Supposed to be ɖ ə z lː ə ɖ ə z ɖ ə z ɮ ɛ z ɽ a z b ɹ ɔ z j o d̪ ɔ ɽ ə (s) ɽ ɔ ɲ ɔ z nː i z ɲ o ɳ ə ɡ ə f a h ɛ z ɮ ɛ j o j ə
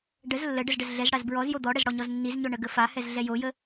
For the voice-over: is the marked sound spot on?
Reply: no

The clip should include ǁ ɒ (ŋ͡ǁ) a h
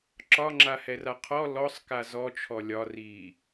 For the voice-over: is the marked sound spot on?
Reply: yes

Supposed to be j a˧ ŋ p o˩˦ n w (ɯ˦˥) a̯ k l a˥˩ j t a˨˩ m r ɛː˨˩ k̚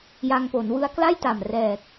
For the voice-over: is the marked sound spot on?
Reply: yes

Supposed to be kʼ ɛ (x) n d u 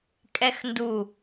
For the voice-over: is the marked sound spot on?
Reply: yes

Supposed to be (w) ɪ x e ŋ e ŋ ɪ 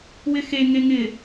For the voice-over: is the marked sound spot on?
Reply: yes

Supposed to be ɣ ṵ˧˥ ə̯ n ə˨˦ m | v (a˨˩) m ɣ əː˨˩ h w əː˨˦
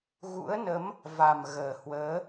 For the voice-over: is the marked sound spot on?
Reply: yes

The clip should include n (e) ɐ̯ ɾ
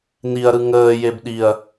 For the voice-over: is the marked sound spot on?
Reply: no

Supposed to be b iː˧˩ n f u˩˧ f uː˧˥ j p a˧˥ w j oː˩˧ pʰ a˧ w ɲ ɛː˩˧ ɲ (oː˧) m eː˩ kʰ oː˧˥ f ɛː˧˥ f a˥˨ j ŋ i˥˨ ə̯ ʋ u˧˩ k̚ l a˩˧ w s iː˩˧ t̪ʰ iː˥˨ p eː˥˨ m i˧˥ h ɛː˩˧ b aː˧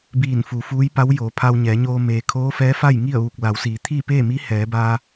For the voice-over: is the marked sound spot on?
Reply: yes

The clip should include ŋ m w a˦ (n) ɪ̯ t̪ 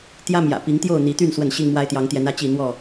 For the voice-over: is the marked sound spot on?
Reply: no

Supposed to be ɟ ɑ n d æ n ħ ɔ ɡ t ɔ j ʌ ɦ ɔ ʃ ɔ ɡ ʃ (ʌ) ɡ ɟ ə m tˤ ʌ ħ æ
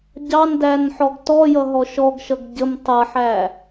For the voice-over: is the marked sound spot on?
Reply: yes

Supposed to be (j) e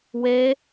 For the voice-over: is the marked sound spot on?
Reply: no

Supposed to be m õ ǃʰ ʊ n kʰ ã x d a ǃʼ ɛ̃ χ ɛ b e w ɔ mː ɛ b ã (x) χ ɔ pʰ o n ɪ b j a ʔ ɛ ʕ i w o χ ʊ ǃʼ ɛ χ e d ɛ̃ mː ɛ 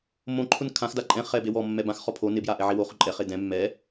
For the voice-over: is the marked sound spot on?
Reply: yes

